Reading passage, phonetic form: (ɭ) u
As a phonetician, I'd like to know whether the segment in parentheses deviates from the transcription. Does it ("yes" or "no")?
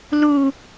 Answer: yes